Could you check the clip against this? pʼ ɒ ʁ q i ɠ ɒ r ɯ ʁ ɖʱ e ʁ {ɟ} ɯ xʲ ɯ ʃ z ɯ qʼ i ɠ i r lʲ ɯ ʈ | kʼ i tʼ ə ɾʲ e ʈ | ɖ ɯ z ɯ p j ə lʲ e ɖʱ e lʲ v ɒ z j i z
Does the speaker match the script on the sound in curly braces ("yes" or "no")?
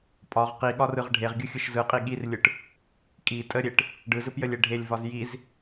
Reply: no